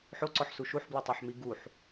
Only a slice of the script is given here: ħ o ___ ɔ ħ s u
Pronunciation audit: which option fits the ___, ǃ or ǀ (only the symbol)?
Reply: ǀ